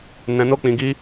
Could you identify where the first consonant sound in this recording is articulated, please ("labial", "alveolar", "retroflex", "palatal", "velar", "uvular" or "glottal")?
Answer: alveolar